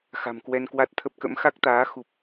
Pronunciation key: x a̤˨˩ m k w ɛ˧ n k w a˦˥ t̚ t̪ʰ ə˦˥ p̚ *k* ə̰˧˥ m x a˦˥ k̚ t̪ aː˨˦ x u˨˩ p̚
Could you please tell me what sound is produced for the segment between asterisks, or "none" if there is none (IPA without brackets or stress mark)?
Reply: k